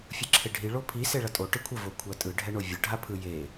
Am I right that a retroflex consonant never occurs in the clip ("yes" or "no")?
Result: no